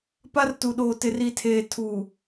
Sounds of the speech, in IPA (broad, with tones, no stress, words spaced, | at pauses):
pa˦rtu˨ɗoː˨ tɪ˨ri˨tʰeː˨ tʰu˨